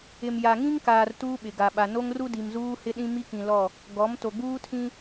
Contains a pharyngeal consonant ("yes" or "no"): no